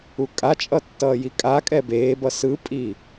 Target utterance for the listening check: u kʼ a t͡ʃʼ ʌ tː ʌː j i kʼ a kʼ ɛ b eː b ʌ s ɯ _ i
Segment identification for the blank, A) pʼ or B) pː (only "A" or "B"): A